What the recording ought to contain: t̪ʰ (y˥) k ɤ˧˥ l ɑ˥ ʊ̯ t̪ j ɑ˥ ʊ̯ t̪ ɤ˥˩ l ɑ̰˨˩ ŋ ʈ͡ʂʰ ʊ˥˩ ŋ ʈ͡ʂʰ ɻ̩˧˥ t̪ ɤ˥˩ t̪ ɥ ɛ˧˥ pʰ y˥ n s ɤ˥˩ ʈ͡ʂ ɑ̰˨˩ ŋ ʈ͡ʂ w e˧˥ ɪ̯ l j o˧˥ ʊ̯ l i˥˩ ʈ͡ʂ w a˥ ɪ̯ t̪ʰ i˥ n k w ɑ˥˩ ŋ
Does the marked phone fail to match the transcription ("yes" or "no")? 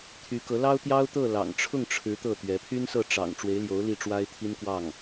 yes